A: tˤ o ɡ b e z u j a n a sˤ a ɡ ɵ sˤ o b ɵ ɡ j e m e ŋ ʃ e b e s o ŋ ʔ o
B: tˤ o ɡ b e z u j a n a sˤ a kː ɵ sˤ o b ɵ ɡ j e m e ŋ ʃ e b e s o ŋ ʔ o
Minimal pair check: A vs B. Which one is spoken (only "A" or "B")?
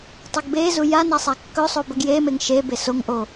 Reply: B